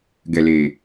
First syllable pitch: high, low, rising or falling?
low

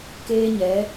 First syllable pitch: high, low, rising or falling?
high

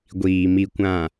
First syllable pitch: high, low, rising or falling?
low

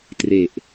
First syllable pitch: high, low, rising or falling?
low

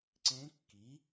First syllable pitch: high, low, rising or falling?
rising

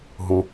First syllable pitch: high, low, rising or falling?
high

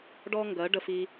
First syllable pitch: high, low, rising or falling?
high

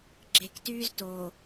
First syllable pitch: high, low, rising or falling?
low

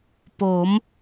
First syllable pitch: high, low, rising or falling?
rising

